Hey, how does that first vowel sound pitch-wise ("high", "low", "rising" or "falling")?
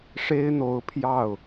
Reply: high